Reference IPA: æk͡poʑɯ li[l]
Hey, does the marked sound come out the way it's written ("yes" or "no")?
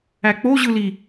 no